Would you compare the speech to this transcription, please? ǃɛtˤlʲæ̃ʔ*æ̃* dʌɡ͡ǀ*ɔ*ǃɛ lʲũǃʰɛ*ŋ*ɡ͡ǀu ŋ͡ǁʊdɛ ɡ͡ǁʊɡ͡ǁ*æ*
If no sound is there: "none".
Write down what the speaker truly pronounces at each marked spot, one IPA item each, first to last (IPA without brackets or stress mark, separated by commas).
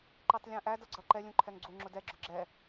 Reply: æ, ʌ, ŋ, ɛ